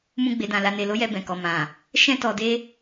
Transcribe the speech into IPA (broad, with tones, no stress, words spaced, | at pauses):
mũ˧ɡ͡be˨dã˨ la˨ne˨lo˨˦jɛ˧ bɛ̃˨kɔ˨ mã˨ | ʃɛ̃˧tɔ˨de˧